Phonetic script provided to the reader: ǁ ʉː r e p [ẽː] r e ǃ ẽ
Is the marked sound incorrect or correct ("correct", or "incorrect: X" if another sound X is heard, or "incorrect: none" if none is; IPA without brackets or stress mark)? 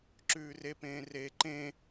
correct